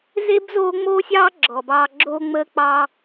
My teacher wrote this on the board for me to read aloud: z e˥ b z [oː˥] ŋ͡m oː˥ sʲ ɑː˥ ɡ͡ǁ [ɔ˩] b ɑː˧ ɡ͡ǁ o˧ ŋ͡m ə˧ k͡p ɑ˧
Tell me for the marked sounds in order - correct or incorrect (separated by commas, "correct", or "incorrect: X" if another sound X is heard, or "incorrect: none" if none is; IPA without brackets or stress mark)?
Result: correct, correct